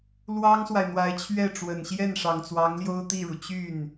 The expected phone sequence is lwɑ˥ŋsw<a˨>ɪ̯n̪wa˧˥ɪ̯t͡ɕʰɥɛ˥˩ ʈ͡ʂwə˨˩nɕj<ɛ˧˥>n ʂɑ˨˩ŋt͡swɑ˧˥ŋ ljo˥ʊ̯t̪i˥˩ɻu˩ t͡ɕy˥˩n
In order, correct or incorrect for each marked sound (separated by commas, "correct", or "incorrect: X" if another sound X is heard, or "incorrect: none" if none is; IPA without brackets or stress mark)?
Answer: correct, incorrect: ɛ˥˩